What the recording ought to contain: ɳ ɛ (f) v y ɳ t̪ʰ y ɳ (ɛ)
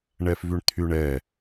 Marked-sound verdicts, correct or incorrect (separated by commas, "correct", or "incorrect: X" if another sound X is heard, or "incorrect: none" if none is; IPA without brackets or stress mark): correct, correct